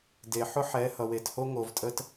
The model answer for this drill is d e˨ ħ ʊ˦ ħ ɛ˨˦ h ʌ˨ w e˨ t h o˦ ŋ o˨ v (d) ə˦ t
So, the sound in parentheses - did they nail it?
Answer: no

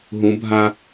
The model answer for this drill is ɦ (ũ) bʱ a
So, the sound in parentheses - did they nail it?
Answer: yes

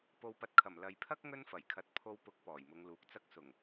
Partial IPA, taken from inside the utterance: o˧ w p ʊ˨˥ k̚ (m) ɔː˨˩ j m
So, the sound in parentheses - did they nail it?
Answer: no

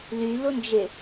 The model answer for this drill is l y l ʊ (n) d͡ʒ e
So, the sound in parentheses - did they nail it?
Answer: yes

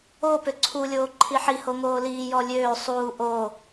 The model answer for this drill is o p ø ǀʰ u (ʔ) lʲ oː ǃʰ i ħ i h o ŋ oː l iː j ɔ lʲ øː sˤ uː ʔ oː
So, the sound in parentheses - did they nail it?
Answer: no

